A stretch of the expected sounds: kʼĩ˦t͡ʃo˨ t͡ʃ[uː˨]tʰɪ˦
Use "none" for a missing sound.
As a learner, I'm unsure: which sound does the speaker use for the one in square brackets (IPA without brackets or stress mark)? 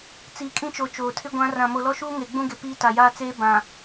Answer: oː˨